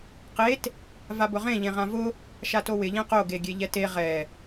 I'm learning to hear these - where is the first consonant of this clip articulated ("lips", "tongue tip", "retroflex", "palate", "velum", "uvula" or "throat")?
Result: uvula